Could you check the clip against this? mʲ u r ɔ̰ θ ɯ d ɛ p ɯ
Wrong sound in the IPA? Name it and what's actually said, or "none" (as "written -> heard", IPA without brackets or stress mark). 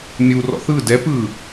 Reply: none